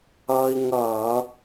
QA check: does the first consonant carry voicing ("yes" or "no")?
yes